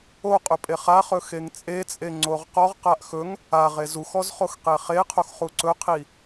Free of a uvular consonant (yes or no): no